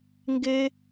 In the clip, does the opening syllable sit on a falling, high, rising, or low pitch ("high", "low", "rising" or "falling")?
high